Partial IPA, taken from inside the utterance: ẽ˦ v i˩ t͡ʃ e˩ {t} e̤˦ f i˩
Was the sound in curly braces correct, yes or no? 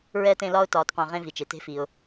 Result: yes